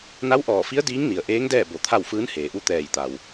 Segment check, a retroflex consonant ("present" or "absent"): absent